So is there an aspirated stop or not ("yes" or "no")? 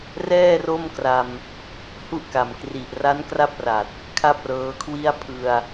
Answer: yes